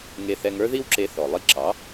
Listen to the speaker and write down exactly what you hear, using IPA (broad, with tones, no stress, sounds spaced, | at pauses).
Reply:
ŋ e˧ θ ɛ˧ ŋ ə˞˥ ð i˥ w ǁ e˧ θ ɔ˩ lˠ i˧ ǁ ɑ˩˥